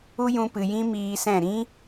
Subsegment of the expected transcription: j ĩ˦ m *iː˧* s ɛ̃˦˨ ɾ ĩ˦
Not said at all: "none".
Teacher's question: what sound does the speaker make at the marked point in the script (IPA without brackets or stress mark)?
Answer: iː˧